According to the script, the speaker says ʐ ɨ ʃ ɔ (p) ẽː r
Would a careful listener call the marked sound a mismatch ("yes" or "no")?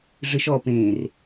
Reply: no